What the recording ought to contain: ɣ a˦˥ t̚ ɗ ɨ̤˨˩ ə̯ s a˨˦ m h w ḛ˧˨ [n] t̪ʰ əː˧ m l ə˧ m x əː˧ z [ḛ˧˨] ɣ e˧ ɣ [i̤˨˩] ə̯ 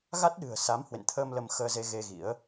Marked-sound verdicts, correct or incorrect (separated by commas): correct, incorrect, incorrect